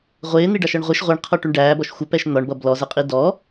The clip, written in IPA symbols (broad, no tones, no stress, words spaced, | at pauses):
ʁʷɪːn̪iɖɑʃʌɳ ʁʷiʃ ʁʷiɳqʰɔʈuɳ ɖæːbɔʃ xʷəpɛʃ n̪ɒɳbʌ blɔzəqʼi dɔ